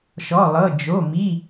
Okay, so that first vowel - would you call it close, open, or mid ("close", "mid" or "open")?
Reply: mid